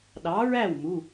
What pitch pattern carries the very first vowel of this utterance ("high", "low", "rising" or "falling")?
rising